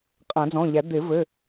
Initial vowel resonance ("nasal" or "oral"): nasal